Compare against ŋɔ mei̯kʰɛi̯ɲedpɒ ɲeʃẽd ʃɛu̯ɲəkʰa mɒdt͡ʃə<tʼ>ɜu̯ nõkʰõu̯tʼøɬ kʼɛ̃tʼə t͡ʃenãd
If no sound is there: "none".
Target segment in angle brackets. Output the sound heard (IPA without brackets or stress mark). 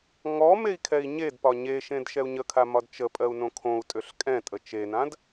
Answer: pʼ